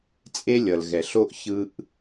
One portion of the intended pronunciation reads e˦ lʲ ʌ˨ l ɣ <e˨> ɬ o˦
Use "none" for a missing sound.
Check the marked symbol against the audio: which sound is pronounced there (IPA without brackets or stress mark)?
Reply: ɛ˨